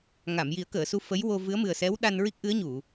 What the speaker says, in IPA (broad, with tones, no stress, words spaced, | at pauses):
ŋa˨˩˨mji˨˩˦ə̯kəː˨˩˨su˧ fə˧˥jwo˧ vɨ˧˥ə̯mɨ˨˩ə̯sɛ˧˥w ɗa˧n ɹi˦˥k̚ʔɨ˧˥ə̯ɲu˨˩˨